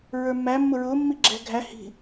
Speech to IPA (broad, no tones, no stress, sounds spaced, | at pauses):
ɹ ə˞ mː æ mː ʊ ɹ ʊː mː i ɡ͡ǁ ɛ̤ ɡʱ æ h i̤